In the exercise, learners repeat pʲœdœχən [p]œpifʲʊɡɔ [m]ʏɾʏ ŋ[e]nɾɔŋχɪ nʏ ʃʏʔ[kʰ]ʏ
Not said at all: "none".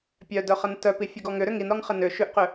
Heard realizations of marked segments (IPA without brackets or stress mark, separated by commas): t, ŋ, i, q